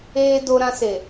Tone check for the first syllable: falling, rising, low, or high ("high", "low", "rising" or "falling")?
high